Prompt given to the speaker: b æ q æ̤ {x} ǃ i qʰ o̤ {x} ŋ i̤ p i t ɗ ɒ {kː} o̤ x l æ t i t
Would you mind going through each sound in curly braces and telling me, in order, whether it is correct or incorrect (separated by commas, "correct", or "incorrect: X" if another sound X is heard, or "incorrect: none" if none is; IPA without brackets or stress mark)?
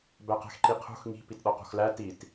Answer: correct, correct, incorrect: q